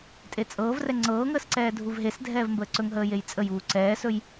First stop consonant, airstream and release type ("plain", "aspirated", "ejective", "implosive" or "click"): ejective